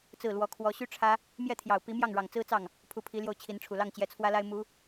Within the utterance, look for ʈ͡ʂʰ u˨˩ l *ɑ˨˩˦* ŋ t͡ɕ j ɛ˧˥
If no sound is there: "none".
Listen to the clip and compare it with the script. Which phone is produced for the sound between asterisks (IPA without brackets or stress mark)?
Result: ɑ˥˩